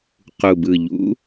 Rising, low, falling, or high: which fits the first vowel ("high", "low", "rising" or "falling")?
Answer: low